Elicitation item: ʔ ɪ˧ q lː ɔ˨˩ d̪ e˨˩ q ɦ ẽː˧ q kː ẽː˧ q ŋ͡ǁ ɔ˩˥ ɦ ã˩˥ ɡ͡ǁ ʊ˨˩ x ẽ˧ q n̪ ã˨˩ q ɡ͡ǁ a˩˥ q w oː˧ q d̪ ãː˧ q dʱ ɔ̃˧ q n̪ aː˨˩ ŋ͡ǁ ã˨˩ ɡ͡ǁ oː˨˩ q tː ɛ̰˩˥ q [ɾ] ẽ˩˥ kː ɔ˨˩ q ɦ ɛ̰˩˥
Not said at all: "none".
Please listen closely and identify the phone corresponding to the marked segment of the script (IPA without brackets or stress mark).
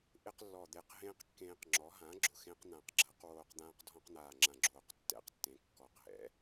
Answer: tː